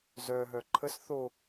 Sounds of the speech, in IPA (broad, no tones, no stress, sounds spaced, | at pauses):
z œ ɦ œ ǃʰ ə s θ o